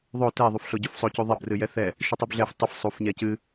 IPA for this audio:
ðˤ o t ɛ ðˤ u f ɬ o ɟ u f sˤ o c u ðˤ ɛ b r ɨ j ɛ θ ɛ | ʃ ɨ tˤ u b ɮ ɛ f tˤ ɨ f sˤ u f ɲ ɛ c ɨ

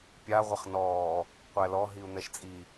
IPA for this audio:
pʲ a ʁʷ ə χ n ɔː | qʷ æ l ɔ ɦ i u̯ n̪ ɛ ʃ t͡sʼ i

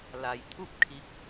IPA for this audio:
l a˩ j t̪ʰ u˥˨ p̚ kʰ i˧˥ k̚

